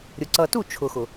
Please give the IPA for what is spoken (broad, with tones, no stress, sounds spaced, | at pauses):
ɾʲ ʊ˨ ǀ ʌ˨ t u˦˨ t͡ʃʰ ʊ˨ x ʊ˨